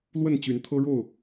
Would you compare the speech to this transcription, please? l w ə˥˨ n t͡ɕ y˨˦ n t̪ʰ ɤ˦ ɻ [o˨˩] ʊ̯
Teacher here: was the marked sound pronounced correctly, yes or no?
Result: no